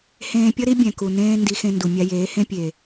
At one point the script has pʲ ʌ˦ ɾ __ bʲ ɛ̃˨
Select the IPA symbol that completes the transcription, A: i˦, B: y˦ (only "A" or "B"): A